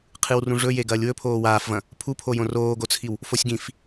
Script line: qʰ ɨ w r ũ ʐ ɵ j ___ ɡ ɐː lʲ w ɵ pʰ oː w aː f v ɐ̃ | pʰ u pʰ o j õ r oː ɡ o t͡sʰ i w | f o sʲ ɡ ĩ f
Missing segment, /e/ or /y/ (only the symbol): e